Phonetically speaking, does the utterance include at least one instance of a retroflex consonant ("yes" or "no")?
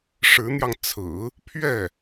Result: yes